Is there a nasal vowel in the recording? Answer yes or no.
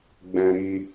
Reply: yes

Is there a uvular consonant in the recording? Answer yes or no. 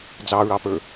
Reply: no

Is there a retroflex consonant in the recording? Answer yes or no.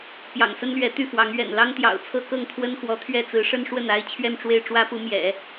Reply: yes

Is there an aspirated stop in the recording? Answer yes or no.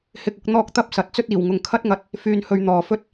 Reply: yes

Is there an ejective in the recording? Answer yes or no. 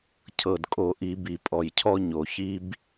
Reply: yes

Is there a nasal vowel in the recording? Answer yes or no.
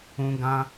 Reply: yes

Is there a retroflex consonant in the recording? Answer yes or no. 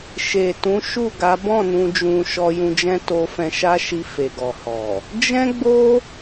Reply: no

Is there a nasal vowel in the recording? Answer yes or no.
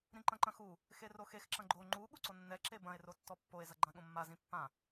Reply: yes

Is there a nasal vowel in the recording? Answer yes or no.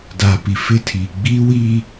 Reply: no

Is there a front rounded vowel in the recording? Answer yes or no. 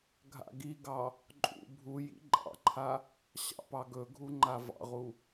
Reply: no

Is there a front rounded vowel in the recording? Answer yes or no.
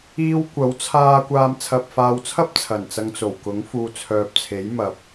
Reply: yes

